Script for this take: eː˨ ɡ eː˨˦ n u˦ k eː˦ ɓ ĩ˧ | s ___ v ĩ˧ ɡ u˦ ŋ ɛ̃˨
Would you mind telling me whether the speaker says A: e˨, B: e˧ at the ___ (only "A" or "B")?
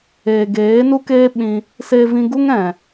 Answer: B